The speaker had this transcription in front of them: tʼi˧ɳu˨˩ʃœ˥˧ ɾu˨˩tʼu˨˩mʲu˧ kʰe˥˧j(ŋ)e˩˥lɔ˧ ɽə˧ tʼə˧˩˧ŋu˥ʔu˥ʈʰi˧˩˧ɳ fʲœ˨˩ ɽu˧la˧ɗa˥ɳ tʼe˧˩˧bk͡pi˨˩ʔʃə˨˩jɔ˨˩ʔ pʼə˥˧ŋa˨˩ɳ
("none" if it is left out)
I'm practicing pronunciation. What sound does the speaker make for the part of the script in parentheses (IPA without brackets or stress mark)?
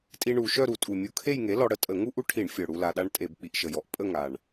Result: ŋ